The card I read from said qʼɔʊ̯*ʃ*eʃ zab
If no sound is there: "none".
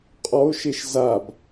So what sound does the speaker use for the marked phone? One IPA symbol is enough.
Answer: ʃ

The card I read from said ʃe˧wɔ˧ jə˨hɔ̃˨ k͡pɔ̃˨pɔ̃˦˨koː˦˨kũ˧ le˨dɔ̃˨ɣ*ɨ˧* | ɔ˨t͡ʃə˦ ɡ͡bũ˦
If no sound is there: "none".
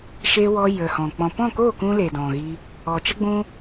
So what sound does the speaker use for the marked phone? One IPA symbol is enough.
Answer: i˧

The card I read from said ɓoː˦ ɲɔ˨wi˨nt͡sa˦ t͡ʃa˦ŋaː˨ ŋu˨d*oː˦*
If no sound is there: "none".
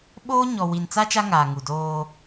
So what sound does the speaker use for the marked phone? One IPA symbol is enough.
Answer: oː˦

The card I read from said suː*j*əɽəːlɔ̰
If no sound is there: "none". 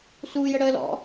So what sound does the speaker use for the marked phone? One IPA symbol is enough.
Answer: j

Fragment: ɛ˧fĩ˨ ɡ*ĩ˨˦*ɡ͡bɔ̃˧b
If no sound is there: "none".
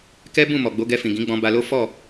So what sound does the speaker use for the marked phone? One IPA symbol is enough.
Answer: ĩ˨˦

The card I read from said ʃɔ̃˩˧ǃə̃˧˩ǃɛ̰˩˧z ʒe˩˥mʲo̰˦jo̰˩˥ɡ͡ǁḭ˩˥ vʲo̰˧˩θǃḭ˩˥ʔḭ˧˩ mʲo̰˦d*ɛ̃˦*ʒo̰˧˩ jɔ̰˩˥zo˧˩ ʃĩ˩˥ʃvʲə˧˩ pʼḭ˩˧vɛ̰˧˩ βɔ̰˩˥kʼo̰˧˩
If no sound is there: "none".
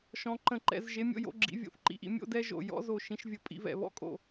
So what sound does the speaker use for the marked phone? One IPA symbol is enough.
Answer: ɛ˦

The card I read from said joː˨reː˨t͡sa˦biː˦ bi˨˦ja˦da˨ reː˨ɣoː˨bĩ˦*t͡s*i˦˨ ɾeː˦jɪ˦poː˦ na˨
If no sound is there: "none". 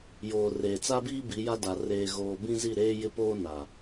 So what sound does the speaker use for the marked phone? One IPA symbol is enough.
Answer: z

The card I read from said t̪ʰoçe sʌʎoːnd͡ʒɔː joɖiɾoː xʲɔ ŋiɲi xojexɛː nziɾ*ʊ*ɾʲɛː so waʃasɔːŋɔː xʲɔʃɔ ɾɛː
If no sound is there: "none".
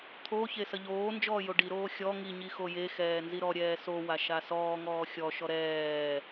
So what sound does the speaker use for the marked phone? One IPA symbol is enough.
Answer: ɔ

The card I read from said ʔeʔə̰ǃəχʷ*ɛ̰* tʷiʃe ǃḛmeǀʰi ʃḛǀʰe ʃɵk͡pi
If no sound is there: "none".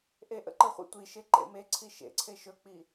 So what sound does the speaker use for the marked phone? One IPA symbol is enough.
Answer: ḛ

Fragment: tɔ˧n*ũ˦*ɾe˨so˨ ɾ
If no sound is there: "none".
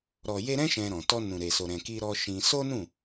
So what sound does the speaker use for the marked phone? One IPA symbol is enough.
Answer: ũ˨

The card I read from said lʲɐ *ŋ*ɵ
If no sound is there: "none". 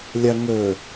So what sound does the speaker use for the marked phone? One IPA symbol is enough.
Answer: ŋ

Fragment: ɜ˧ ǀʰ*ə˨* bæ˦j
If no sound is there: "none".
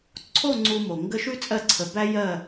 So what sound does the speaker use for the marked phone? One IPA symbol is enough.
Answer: ə˨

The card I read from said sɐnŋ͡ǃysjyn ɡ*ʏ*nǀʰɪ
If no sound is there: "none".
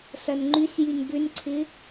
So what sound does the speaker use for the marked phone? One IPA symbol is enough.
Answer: ʏ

